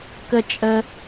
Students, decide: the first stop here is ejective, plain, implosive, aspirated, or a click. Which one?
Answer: plain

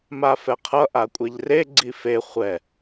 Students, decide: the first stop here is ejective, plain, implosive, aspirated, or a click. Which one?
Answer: aspirated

